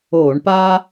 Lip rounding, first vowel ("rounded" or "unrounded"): rounded